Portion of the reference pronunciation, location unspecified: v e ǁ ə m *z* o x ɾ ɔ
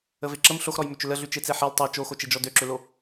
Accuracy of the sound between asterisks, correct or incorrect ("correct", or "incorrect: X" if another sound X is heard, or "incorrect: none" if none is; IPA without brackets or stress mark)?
incorrect: ɬ